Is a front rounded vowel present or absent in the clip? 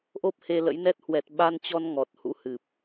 absent